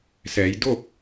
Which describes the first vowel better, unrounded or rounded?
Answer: unrounded